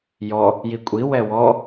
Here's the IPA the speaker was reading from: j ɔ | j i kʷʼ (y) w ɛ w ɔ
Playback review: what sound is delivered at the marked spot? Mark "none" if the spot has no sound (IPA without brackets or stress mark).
i